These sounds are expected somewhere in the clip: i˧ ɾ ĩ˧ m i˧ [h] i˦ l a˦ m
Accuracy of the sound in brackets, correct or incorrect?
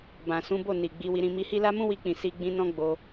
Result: correct